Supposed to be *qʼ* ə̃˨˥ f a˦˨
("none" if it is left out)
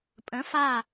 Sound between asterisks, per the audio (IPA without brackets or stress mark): pʼ